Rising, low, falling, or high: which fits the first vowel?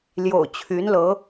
low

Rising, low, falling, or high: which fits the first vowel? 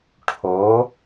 rising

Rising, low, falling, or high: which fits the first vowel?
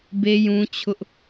high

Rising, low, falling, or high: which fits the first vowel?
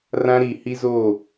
high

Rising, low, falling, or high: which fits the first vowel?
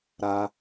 high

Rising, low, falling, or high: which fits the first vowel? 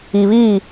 low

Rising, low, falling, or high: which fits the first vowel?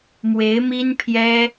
rising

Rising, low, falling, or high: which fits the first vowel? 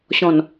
low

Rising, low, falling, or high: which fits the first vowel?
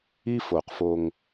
high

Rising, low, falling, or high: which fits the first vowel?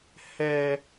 high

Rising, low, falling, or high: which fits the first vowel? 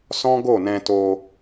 high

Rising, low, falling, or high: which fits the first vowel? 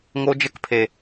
high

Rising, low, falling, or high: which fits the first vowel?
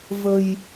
low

